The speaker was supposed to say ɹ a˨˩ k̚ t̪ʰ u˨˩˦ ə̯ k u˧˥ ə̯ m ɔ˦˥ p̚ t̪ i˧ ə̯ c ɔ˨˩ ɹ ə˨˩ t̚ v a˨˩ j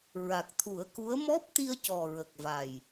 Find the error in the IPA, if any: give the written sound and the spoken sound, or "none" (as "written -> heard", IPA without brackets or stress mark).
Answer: t̚ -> k̚